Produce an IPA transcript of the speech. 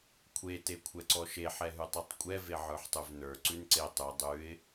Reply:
kʷʰ e t e kʷʰ ɛ ǀ ɔ ʃ e ħ ɛ ɦ ʉ tˤ ʉ tˤ kʷʼ ɛ v e ʕ ə˞ ħ tˤ ʉ v n ə˞ ǀ ʉ n ǀ e tˤ ʉ dˤ ʉ ɪ̯

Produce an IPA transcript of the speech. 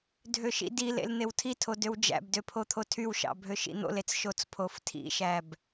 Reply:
dʱ ø ʃ ḭ d i l ḛ l n̪ e w tʰ i tʰ o d ø w d͡ʒ æ̰ b d ø pʰ o t̪ʰ o tʰ y w ʃ ɑ̰ bʱ ø ʃ ḭ n̪ o̰ l e t͡s ʃ o t͡s pʰ o f tʰ ḭ ʃ æ b

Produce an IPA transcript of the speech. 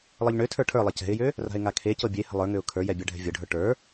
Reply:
lˠ ɤ ʎ ɳ ø tʰ ə˞ ʈʰ ə˞ lˠ ɛ c ɛ̤ ɪ̯ j ø | r a̤ ɪ̯ ŋ a kʰ e c ɤ bʲ e h ə̤ lˠ ə˞ ŋ ø ʊ̯ kʰ ə˞ j ɛ bʲ a ɖʱ ɛ̤ vʲ ɤ ɖʱ ə˞ ʈ ə˞

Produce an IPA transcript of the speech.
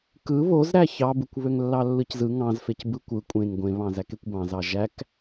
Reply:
k ɯ β o z ɾ æ ç ɑ b ɯ kʷ β ø ŋ lː ɑ lː ɯ c z ɯ ŋ ɑ̃ z f e c b ɯ kʷ ɯ kʷʼ ẽ ŋ ɡʷ ẽ β ɑ̃ z æ k e kʷ b ɑ̃ z ɑ ʒ æ k

